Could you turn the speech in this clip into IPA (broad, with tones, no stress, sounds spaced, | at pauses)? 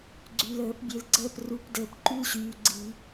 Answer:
ɡ͡ǀ y˨ l əː˨˩˦ p bʲ e˨ l ɡ͡ǀ əː˦˨ p r u˨˩˦ p d əː˨ p ǃ y˦ l ɕ yː˨ ɡ͡ǀ i˨˩˦